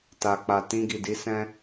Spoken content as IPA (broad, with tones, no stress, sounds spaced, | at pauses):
t a˨ k͡p a˨ t ĩ˧ ɡ i˨ d i˨˦ s ɛ̃˦